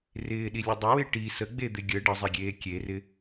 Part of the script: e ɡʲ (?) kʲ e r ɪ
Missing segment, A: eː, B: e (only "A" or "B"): A